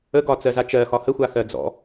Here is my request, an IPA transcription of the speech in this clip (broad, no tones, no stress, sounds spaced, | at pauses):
ə ɡ ɒ t͡s ɜ z a t͡ʃ ɜ x ɒ h ə xʷ a x ɜ d͡z ɔ̰